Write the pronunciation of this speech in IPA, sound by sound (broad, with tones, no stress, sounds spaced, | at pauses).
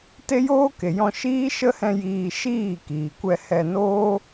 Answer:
t e˦ j oː˦ k e˨ j ɔ̃˧ ʃ iː˦ ʃ ə˦ h ɛ̃˧ j iː˧ ʃ iː˦˨ k iː˨ kʷ ɛ˧ h ɛ˧ n oː˦